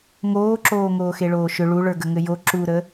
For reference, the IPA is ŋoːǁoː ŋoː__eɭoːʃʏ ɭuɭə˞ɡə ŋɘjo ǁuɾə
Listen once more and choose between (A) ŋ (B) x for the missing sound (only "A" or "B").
B